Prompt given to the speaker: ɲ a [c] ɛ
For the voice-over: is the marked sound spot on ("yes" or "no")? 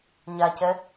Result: yes